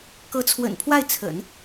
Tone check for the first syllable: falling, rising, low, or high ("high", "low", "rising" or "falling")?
rising